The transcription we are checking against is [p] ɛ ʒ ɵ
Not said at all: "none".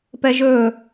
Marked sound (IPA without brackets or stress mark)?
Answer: p